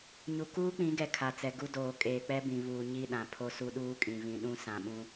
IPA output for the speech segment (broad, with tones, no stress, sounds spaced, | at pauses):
ɲ u˨ k uː˦ k͡p ĩ˨˦ ɡ ɛ˨ kʰ a˨ t͡s ɛ˨ ɡ u˦ d oː˨ kʼ eː˨ k͡p ɛ˦ b ĩ˨ β uː˨ ɲ i˦˨ ɗ ã˨ pʰ o˦ s u˦ ɗ uː˦ kʼ ĩ˨ β ĩ˨ ɗ ũ˦ s ã˨ ɓ ũ˦